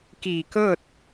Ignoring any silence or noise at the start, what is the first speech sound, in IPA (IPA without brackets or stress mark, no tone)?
k